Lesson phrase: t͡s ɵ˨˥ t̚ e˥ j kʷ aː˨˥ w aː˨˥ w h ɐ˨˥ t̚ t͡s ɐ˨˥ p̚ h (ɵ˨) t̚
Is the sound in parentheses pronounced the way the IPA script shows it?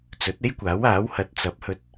no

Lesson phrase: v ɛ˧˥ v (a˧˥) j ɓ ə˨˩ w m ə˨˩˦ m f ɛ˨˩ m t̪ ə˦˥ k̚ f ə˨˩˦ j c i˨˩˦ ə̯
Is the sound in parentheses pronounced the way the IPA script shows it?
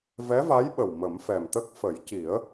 yes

